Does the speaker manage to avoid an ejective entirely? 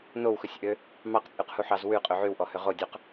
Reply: no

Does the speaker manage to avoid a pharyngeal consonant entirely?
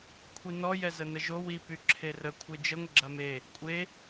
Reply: yes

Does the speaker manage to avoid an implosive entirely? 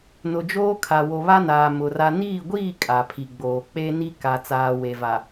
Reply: yes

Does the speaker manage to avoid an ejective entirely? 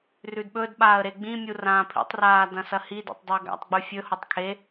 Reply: yes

